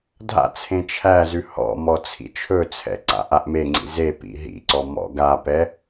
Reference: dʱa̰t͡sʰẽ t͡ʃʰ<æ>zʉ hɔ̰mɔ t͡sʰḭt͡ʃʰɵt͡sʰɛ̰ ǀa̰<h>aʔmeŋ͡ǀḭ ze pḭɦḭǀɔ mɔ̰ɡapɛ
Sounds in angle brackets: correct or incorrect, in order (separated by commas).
correct, incorrect